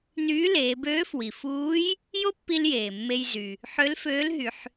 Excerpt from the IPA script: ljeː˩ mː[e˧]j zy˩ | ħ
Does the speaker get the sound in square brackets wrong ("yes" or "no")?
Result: no